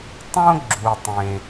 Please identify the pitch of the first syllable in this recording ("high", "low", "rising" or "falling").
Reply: high